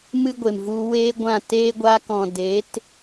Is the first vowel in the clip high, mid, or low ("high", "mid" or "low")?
high